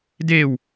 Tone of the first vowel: falling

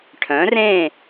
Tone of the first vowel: rising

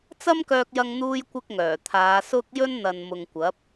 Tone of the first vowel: high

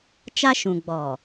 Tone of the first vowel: high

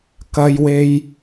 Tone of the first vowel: low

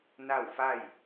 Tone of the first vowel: falling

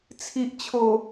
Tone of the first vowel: low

